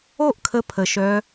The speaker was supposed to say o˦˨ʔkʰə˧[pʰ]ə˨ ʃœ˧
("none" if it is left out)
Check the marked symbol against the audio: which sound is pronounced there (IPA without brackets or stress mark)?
pʰ